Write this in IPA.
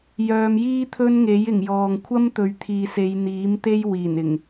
jœː˨˧mjiː˥t̪ʰɵ˥nŋe˨˥j ɪ˨˩ŋjɔː˨ŋ kʷʰɐ˥mt̪ɵ˨˧ɥt̪ʰiː˨se˨˧j n̪iː˨˥mt̪e˥j wiː˨˩nɪ˨˩ŋ

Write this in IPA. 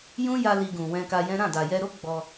jũ˦ja˧ li˧ɡũ˨ wɛ̃˧ka˧jɛ̃˦ ɾã˦˨da˨jɛ˧ɾo˦ ɡ͡bɔ˧

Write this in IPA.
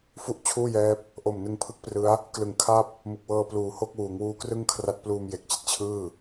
fu˥˩ʔt͡ɕʰuː˥˩jɛː˦˥p̚ | ʔo˨˩mnɯ˧ŋpʰɯ˦˥k̚prɯ˦˥a̯ | klɯ˨˩ŋkʰa˥˩p̚ | mɯ˨˩k̚wɤː˧ pluː˨˩ho˥˩k̚wuː˩˦ŋ wuː˦˥ krɯ˥˩ŋkʰra˦˥t̚ pluː˧mje˨˩k̚t͡ɕi˦˥t̚t͡ɕʰɯː˥˩

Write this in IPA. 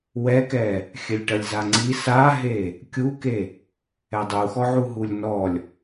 wɛkɛ | xʲɘlʲʈɐlʲzaŋ͡ǀi saɦe | kʲuke | ɛdˤuxɔʕu ɦulʲnɔlʲ

